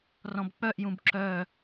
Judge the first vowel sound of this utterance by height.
mid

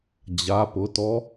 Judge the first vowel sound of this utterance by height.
low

